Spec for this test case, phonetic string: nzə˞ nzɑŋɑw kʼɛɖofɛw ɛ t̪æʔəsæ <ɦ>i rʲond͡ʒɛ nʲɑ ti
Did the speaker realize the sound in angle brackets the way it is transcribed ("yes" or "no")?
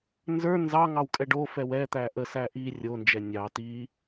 no